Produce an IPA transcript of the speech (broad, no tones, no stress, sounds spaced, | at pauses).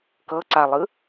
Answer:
k ɤ ǀ a lˠ ɯ